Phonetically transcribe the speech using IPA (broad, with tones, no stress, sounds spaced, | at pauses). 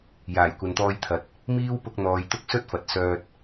j aː˨˩ j kʷ ɐ˨ n t̪ ɔː˧ j t̪ʰ ɐ˨ t̚ | m iː˥ w p ʊ˧ k̚ n̪ ɔː˨ j t̪ ʊ˥ k̚ s ɵ˥ t̚ f ɐ˨ t̚ s œː˧ t̚